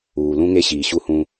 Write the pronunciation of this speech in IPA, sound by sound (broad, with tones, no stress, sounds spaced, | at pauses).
uː˨ l ũ˦ ŋ e˦ ɕ iː˨ ɕ u˦ h ũ˦